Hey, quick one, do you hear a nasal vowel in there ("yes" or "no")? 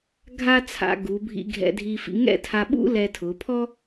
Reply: no